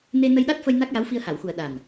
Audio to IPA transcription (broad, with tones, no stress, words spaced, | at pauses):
ne˧nə˧jɗa˦˥t̚fə˧j na˦˥k̚ja˧˥w fi˧ə̯ha˨˩˨wxu˨˩ə̯ ɗa˨˩n